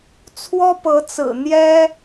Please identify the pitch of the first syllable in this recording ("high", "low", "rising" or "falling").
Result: high